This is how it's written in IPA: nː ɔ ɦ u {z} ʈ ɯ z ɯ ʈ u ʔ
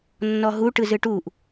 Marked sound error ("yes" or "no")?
yes